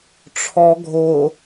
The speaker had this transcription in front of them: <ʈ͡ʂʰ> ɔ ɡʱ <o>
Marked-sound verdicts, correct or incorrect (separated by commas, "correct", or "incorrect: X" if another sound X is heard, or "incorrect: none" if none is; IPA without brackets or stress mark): correct, correct